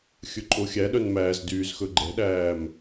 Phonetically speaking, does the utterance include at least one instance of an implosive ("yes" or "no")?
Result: yes